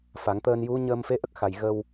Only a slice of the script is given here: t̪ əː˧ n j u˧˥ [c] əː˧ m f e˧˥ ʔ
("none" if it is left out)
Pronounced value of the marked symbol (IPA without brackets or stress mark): ɲ